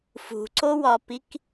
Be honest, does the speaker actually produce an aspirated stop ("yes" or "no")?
no